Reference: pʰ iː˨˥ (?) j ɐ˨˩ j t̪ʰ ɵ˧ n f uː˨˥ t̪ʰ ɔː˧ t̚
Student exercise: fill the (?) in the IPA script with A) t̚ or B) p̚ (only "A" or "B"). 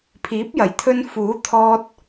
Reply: B